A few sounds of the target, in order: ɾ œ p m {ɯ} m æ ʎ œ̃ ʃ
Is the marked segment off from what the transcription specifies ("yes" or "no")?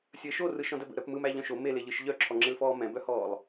no